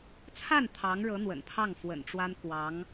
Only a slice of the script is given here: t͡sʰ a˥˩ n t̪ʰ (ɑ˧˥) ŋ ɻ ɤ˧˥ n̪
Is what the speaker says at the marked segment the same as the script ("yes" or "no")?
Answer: yes